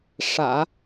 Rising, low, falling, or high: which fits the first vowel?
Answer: low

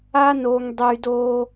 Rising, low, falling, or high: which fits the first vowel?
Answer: high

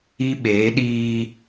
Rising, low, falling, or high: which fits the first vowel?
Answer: high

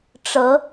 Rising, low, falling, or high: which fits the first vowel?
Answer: rising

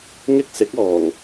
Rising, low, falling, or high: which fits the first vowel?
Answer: high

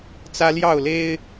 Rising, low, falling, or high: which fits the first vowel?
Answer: high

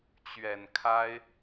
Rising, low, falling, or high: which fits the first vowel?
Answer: low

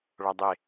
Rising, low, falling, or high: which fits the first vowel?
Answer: high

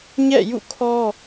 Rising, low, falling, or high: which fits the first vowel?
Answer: falling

